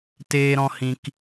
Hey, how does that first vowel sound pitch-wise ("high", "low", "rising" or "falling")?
high